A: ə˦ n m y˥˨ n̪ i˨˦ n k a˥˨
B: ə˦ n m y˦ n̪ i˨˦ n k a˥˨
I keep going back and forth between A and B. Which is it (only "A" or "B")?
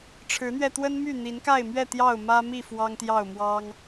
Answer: A